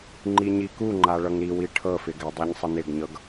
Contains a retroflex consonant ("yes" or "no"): yes